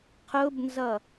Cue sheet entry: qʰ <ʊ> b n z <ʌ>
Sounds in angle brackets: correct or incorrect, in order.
correct, correct

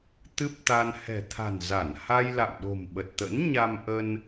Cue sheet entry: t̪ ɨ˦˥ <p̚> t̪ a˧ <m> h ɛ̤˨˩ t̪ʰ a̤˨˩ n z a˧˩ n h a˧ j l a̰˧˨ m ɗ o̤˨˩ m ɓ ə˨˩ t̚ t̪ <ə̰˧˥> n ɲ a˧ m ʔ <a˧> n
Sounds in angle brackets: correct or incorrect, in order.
correct, incorrect, correct, incorrect

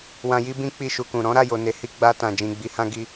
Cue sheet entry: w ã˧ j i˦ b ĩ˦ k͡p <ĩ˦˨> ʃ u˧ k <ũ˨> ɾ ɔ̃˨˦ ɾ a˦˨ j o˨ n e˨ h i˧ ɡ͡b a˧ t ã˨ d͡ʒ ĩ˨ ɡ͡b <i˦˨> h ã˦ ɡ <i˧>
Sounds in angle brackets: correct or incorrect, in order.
incorrect, correct, incorrect, correct

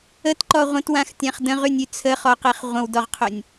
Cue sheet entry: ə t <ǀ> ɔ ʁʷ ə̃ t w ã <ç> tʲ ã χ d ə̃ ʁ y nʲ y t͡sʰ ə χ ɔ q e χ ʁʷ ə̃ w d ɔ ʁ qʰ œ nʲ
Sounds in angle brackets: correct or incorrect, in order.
incorrect, incorrect

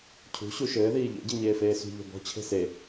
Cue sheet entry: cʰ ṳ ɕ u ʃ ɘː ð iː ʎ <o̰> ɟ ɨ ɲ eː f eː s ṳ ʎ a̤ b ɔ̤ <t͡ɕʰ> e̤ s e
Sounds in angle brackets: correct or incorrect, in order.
correct, correct

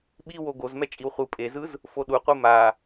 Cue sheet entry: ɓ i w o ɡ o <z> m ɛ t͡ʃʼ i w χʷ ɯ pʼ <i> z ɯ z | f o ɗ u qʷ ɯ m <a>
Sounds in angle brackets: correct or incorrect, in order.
correct, incorrect, correct

